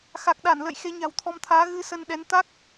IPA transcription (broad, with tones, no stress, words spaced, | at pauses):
xa˨˩k̚ɗa˧˩nlə̰˧˨j xe˨˦ɲa̤˨˩wt̪ʰɔ˧mt̪ʰaː˨˦ ɣɨ˧sə˧nɗɛ˨˦n t̪a˦˥k̚